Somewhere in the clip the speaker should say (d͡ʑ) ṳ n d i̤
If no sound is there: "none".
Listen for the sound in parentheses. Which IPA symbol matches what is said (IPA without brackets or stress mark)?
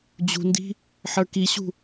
d͡ʑ